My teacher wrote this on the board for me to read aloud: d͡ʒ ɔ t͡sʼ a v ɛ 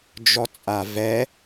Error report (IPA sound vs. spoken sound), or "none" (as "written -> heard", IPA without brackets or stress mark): none